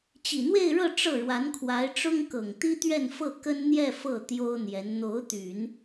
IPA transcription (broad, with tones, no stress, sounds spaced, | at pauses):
t͡ɕ i˨˩ n̪ w e˥˧ ɪ̯ ɻ ɤ˥˧ ʈ͡ʂ ɤ˥˩ ɻ w a˧˥ n kʰ w a˧˥ ɪ̯ ʈ͡ʂ ʊ˥ ŋ k ɤ˨˩ ŋ t̪ i˥ t̪ ɥ ɛ˥˧ n f ɤ˥˩ k ə˥ n n̪ j ɛ˥˧ f ɤ˥˩ t̪ j o˥ ʊ̯ n̪ j ɛ˧˥ n n̪ o˧˥ ʊ̯ t̪ y˨˩˦ n